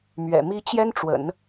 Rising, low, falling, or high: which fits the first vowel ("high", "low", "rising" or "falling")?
low